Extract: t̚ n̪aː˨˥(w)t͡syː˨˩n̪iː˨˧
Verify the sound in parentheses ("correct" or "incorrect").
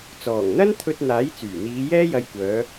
incorrect